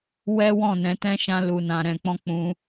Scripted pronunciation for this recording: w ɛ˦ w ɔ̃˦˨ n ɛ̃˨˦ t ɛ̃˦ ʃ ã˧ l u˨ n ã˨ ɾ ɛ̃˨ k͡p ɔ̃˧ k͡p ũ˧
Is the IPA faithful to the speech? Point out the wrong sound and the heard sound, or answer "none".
none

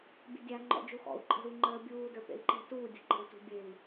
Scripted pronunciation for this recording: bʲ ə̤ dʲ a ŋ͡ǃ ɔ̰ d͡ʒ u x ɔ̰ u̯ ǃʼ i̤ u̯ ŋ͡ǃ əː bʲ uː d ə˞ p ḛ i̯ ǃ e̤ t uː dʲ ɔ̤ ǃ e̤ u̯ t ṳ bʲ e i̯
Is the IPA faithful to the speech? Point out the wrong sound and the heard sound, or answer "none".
i̤ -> e̤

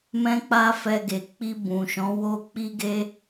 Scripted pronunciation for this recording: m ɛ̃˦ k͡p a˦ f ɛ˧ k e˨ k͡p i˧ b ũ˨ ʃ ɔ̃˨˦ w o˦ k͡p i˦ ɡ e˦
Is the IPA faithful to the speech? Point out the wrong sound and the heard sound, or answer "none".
k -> ɡ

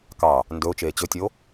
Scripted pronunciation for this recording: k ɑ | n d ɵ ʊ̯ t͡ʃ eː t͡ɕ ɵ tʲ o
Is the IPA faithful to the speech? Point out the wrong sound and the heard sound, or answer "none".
none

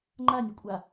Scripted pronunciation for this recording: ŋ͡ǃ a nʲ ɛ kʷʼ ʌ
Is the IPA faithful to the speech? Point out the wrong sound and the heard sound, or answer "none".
ʌ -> a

